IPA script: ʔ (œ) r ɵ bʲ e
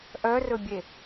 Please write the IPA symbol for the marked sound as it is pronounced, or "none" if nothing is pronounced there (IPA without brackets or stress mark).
œ